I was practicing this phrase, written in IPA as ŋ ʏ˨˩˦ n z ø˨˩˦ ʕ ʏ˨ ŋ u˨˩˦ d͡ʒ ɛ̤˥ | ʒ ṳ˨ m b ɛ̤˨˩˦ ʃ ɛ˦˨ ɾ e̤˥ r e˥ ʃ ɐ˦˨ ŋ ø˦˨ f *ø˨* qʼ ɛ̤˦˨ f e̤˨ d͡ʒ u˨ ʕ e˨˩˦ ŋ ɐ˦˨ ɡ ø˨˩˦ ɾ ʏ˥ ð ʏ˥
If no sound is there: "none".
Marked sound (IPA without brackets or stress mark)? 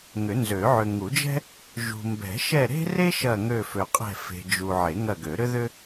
ø˨